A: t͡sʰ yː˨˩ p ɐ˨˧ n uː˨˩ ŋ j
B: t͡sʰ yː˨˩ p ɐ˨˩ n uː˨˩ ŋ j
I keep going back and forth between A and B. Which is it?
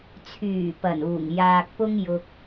B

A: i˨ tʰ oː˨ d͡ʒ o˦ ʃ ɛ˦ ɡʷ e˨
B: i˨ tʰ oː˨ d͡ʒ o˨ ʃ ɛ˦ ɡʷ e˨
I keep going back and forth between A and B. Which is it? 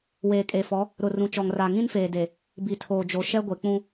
B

